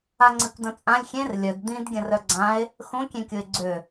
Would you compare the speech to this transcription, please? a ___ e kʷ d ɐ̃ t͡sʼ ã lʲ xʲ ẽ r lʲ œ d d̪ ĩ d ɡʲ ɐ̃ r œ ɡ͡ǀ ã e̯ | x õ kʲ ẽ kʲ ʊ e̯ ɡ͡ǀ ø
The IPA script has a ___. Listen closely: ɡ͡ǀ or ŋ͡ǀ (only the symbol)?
ŋ͡ǀ